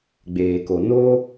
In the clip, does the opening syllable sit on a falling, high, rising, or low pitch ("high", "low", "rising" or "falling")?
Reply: low